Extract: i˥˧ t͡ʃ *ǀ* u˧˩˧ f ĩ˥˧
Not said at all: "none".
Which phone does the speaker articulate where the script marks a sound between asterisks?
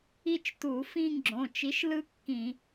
t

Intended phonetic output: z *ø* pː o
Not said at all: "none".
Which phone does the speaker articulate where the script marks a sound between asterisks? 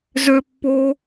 ø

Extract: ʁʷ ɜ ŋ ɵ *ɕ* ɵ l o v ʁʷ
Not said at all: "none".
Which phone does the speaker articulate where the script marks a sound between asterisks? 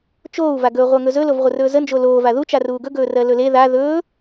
z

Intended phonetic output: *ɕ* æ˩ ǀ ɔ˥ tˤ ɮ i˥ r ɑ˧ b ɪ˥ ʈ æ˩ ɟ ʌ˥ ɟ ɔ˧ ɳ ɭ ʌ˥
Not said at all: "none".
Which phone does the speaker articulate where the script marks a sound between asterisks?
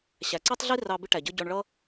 ɕ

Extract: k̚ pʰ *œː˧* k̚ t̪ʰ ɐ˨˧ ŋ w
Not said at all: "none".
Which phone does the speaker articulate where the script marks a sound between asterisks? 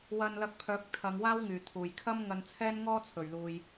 œː˨˥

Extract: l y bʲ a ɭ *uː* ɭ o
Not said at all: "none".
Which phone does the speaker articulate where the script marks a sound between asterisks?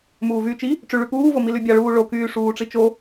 uː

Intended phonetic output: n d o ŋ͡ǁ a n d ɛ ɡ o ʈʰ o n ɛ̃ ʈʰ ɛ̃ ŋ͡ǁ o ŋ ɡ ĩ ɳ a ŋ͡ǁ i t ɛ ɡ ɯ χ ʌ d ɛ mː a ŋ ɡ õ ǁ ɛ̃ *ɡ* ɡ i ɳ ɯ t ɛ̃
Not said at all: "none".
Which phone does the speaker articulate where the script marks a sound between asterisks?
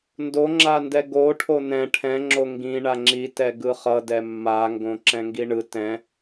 ŋ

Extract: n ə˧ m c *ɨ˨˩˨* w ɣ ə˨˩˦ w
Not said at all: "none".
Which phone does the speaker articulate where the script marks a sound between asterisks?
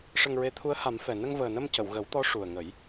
ə˨˩˨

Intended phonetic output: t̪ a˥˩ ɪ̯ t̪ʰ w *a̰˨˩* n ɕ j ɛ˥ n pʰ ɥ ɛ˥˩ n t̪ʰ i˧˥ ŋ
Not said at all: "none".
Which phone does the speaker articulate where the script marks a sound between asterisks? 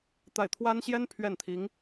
a˥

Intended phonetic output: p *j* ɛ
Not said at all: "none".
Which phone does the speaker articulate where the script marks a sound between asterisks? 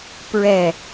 ɹ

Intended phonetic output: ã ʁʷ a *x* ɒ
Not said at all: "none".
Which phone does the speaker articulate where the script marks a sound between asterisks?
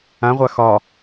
x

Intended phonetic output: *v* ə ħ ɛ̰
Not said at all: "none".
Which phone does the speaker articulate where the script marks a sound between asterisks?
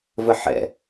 v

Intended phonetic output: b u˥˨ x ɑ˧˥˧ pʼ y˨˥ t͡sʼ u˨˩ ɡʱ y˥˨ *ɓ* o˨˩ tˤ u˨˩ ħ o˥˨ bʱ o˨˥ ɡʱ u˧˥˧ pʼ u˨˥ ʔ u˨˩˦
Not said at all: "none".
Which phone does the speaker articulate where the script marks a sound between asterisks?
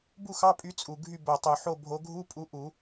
b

